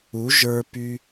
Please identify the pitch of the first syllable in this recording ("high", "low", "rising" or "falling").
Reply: rising